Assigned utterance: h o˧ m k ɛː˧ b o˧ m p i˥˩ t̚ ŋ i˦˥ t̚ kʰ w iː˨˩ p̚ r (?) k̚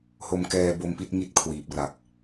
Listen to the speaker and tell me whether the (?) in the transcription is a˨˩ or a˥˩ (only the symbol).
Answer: a˨˩